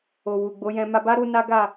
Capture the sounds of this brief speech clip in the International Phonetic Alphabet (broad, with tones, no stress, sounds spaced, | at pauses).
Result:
o˨ w u˨ ɡ͡b o˨˦ j ɛ̃˧ m a˧ b a˦ ɾ u˧ n a˦ ɡ a˦˨